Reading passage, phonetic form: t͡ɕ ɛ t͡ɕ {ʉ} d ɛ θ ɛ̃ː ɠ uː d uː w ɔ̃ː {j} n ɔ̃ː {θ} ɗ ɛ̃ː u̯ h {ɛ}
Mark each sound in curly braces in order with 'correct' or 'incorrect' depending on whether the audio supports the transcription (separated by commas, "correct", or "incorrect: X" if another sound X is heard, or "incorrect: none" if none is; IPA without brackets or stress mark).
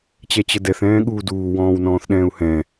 incorrect: ə, incorrect: w, correct, incorrect: ɛ̃